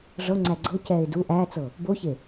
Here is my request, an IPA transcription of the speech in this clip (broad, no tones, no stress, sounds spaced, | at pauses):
ʐ ɤ ŋ͡ǀ æ ɡ͡ǀ ɤ c ɛː ɪ̯ d u ʔ æː t͡s ɤ | b o ç e